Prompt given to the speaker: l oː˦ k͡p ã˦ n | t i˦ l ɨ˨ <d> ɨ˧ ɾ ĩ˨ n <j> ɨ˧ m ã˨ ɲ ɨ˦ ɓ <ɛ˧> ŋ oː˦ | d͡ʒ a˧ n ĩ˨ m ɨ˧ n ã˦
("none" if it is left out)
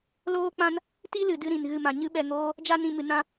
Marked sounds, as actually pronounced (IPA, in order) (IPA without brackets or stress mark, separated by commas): d, ɣ, ɛ˧